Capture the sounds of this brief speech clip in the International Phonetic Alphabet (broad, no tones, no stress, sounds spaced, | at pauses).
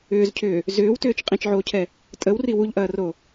ʏː z cʰ ʏː | z ʏː w t ʏː t͡ʃ qʼ ĩ t͡ʃ ʕ oː cʰ ɛ | tʼ ə w r i w u ʎ ʔ ɐː r o